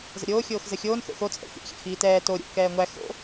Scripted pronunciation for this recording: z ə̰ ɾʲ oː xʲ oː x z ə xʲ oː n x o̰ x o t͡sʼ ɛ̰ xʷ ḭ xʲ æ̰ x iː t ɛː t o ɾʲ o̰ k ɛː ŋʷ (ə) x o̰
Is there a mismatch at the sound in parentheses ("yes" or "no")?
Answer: yes